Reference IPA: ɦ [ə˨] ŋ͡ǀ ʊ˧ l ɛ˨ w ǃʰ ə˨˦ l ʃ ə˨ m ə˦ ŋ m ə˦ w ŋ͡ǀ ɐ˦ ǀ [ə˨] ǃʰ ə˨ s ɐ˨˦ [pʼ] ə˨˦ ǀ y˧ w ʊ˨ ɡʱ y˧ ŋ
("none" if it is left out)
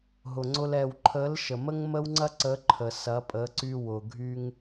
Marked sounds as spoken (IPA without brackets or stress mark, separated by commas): ʊ˨, ə˨˦, pʼ